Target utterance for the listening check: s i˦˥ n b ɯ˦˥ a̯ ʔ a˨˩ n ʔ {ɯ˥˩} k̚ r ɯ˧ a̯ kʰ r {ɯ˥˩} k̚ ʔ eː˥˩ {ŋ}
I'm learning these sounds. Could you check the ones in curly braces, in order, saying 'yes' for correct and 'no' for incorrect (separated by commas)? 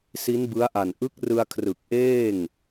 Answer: no, no, yes